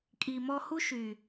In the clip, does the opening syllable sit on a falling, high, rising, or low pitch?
low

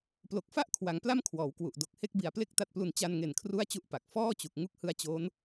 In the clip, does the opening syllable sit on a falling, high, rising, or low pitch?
low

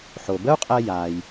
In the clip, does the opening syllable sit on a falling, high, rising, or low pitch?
low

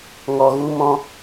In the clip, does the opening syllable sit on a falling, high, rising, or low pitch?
low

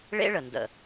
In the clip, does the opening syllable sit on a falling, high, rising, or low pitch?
high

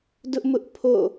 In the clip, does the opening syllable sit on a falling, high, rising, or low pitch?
high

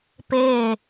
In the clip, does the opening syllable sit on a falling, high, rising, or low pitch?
falling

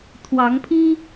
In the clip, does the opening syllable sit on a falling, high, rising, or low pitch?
rising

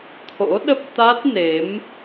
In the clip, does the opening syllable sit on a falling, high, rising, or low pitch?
rising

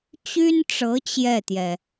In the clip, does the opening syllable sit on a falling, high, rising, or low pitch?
high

